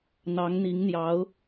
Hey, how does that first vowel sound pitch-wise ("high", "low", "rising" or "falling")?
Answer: rising